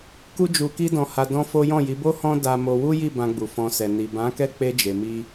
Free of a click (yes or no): yes